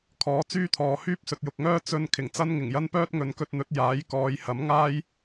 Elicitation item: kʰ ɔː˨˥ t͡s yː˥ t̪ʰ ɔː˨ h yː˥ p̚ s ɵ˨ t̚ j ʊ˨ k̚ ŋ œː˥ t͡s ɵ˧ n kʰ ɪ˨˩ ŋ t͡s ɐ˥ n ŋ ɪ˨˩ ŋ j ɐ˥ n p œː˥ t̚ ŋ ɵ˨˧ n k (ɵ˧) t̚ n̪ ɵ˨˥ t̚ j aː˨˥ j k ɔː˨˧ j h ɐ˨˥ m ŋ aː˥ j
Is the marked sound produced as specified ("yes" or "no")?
yes